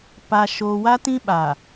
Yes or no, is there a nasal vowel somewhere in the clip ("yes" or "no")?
yes